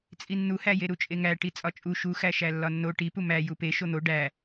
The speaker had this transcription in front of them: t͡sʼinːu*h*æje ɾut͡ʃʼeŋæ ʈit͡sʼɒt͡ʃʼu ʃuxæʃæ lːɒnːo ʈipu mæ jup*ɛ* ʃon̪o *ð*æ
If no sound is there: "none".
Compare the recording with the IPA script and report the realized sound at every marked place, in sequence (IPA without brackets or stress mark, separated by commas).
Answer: h, e, ɖ